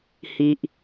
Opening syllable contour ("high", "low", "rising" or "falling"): low